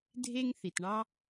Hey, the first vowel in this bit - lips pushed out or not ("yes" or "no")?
no